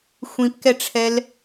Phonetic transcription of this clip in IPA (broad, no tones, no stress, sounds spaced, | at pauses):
xʷ ĩ p k ɛ ʈ͡ʂʰ ɛ l